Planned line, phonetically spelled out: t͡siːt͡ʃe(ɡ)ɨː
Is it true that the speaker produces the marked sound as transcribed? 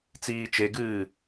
yes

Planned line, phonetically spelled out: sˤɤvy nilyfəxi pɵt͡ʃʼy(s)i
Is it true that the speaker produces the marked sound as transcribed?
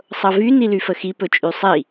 no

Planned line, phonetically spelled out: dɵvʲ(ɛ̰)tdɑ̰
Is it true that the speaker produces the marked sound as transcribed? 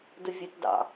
no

